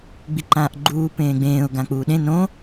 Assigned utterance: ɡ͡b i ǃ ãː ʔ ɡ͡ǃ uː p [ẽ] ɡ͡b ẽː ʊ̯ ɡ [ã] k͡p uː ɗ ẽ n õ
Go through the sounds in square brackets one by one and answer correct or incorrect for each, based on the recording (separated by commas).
incorrect, correct